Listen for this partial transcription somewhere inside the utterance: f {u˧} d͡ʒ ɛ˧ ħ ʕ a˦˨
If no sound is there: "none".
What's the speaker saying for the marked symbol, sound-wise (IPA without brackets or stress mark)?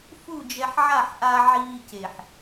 u˦˨